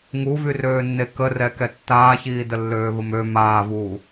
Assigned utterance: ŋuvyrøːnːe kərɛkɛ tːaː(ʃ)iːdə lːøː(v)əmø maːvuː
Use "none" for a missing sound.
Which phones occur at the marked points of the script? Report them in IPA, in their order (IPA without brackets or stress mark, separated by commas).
ç, v